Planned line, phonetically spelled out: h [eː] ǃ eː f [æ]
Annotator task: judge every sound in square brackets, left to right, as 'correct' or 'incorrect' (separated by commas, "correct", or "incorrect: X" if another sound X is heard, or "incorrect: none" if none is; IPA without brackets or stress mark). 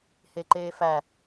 incorrect: e, correct